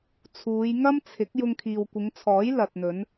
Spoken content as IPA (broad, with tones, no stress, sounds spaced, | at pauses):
t͡sʰ uː˨˧ j ŋ ɐ˥ m t͡sʰ ɪ˨˥ k̚ j ʊ˧ ŋ kʰ iː˨ w kʷ ɪ˨˧ ŋ t͡sʰ ɔː˨˥ j l ɐ˨ t̚ n̪ ɵ˨˧ n